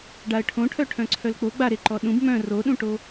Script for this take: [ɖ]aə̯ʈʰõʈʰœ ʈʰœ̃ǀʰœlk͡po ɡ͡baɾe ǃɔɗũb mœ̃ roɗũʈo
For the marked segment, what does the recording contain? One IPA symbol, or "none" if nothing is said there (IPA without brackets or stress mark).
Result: ɖ